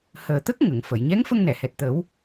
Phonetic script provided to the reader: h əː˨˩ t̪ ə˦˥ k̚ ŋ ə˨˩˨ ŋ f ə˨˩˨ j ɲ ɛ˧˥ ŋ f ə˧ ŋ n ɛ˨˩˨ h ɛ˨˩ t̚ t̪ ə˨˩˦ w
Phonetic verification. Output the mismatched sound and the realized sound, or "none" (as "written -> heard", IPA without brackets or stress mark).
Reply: none